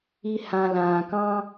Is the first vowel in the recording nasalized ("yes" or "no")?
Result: no